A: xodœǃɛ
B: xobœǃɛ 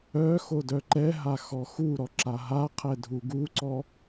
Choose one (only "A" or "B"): A